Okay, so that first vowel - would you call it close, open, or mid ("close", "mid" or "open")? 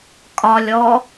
open